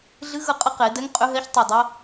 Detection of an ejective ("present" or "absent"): present